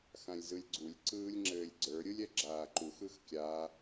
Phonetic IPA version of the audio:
x ã lʲ z ɯ lʲ ɡ͡ǀ u lʲ ǀ ɯː lʲ ŋ͡ǁ ɘː lʲ ɡ͡ǀ ə˞ ɾʲ ɯ lʲ ɛ ɡ͡ǁ aː ǃ u x ɯ x kʲ a

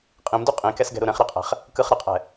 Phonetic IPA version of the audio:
qʼ ĩ m d u qʼ ĩ k ɛ s ɡ ɛ̤ ɾ u ɾ ɛ̃ χ ɾ i qʼ ɛ̤ χ | k ɯ χ ɾ e qʼ ɛ̤

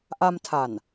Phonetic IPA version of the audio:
ʔ a˧ m tʰ a˨˩ n

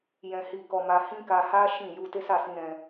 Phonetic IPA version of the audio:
j ɛ̃˧ h i˧ k ɔ˧ m a˧ h ĩ˦ k a˧ h a˦ ʃ ĩ˦˨ j u˧ t e˦ s a˦˨ s ĩ˧ ɾ ɛ̃˧

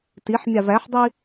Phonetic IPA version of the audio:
t i ħ mʲ ɑ v æ ħ dˤ i

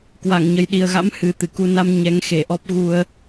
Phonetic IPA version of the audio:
k w a˧˩ ŋ ɲ ə˨˩ j ɗ i˨˩ ə̯ ɣ a̰˧˥ m h ɨ˨˩ t̪ ɨ˧˩ k u˧ n a˧ m ɲ ɛ˨˦ ŋ x e˧˩ ʔ ɔ˦˥ p̚ ɣ u˧ ə̯

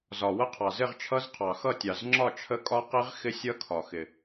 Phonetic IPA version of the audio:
z ɒ˩ w ə˦˥ qʰ ɑ˩ z ɪ˥˧ ʁ t͡ʃʰ ʌ˦˥ z qʰ ɑ˩ x ʌ˥˧ tʲ ɑ˩ z ŋ͡ǁ ɒ˥˧ t͡ʃʰ ə˦˥ kʼ ɒ˦˥ q i˦˥ ʁ x ɪ˦˥ sʲ ʌ˦˥ kʰ ɒ˩ x ɪ˩

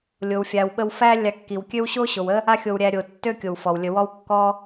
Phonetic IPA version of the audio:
lʲ o˨ w fʲ a˨ w ɓ ə˦ w f æ˦ lʲ a˧ kː i˨ w kʲ ø˦ w ɕ o˦ ɕ o˨ w ə˦ | a˦ xʲ o˧ w ɾʲ æ˧ ɾʲ o˨ tː ø˦ kʲ o˨ w f ɔ˨ w lʲ ə˧ w ɔ˦ w kː ɔ˦

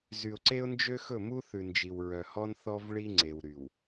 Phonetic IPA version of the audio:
z y˨ ʊ̯ ǀ e˦ ʊ̯ n d͡ʒ ø˦ x ɵ˦˨ m u˦ θ ʉ˨ n d͡ʒ i˨ w ɹ œ˨ h ɔ˦ n θ ɔ˦ v ɭ i˦ ŋ͡ǀ e˨ w ɾ y˨ w

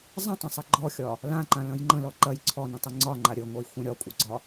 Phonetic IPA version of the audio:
zˤ ə̃ tˤ ɐ̃ sˤ ɐ ɡ͡ǃ ɔ xʲ ɒ | l ã ǃ ã l ɐ̃ j ŋ͡ǃ ə̃ l ɔ ǃ ɐ j ǀʰ ɔ n ə̃ tˤ ɪ ŋ͡ǀ ɒ ŋ͡ǃ a ɾʲ ə ŋʷ ɐ j xʷ ɐ̃ ɾʲ ɒ kʷʼ ə ɡ͡ǀ ɒ

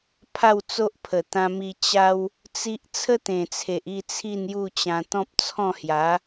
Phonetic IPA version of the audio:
pʰ a˥˧ w t͡s o˦ ʔ pʰ ə˨˩ t̪ ã˧ m i˧ t͡ɕ a˦ w | t͡s i˦ ʔ t͡sʰ ə˦ t̪ ẽ˨˩ t͡sʰ e˨ ʔ i˥˧ t͡sʰ i˥˧ n j u˥˧ t͡ɕ ã˧ t̪ ɔ̃˦ p̚ t͡sʰ ɔ̃˥˧ h j a˨˦

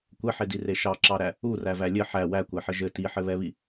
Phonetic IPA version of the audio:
kʷ ɛ ħ e d i r e ʃ ɑ ǁ ɑ ɾ æ | u r æ v æ lʲ ɘ ħ æ w æ kʷ æ ħ ɘ ʒ ɘ t i ħ ɘ β ɛ β i

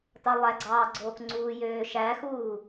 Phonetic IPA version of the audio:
t ɑ lˠ æ ɡ͡ǀ ɑː ɡ͡ǀ oː k ŋ͡ǀ uː j øː ʃ æ x uː

